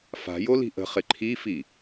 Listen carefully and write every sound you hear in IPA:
fa̤jo li̤ʔə̤χɪ ǃʰifi

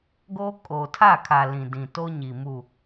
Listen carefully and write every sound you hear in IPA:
ɡoː˦ kʼoː˨tʰa˦˨kʰa˨ lĩ˨dĩ˨to˦ɲi˨ mu˨

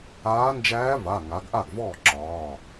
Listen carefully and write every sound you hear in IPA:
aː˧˥ nd͡ʒæː˧˥ va˩˧˩ŋa˩˧ɡʔa˥˩ɡvɔː˥˩ ǁɒː˩˧˩

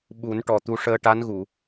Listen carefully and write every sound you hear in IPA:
ɓu˨˩˦nʈɔ˨˩ t̪u˧ʂəː˧ ʈa˧˥nɣu˨˩˨

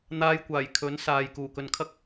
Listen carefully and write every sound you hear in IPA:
n̪aː˧jkʷaː˨˩jkʰɵ˨˥n saː˨j kuː˨˩kɵ˨nkʰɐ˥k̚

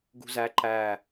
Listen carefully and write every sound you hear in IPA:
ɡṳzæ ǃæ

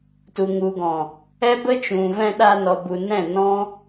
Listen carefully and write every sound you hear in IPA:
tu˨ŋu˨ɡɔ̃˨ | ɛ˦ bə˦t͡ʃũ˨vɛ̃˧ ɗa˧nɔ˨bu˨ nɛ̃˦˨nɔ̃˦

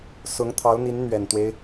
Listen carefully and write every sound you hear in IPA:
sʊ˧˥ŋt̪ʰɑ˧˥ʊ̯n̪i˧˥n n̪ɥɛ˨˩nt̪we˦ɪ̯

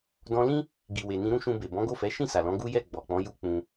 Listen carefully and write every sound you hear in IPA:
dɔ̃˧lĩ˦ | ɡi˨we˨ nĩ˧ɾũ˦ʃũ˧be˨ bɔ̃˨˦ɡo˦˨fɛ˨˦ ʃĩ˦˨sa˨lɔ̃˨˦ ɡu˦jɛ˦˨ ɡ͡bɔ˨k͡pɔ̃˨˦ ju˦k͡pũ˧

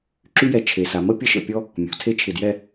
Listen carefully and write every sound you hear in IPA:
ǁy˥jɛ˧ t͡ʃʰe˩˧sa˩˧mə˥ pʲə˥ʃə̰˧˩pʲɔ˥ | mʲɔ̤˩˧tʰe˥˧t͡ʃʰɪ˧˩djɛ˥˧

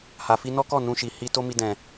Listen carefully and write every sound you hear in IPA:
ha˨fi˧nɔ˦kɔ˦˨ nũ˧ʃi˨ hi˧ to˦mi˧ dɛ̃˨

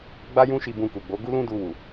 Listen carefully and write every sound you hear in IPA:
ɡ͡ba˦jũ˦ʃi˧ bũ˧ku˨ɡ͡bo˨˦ ɡu˦lũ˦ du˧ wu˨

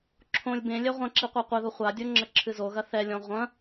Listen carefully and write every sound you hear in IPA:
ǁʰõlʲ bẽlʲɛ ʁʷɐ̃ǁi qʷaqʷɘðo χʷadʲo ŋ͡ǁɐǁʰɨzoɣɐ θɛlʲɔ̃ ʁʷɐ̃

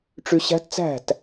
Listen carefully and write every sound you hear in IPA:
ʈ͡ʂy˧ɕæ̤˦˥tt͡sæ̤˥˩t

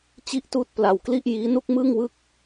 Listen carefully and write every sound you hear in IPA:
t͡ɕi˥˩ʔtuː˥˩t̚ pla˧wkli˥˩ʔjiː˦˥ nu˥˩k̚mɯː˥˩ŋwɯ˥˩k̚

